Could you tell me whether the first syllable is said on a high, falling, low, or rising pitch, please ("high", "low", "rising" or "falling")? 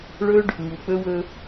high